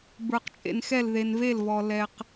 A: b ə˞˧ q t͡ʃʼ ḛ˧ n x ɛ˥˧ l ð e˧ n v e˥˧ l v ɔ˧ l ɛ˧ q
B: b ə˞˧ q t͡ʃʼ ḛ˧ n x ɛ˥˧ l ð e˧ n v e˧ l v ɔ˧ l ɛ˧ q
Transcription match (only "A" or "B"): A